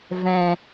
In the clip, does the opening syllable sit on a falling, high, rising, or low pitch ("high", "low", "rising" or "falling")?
low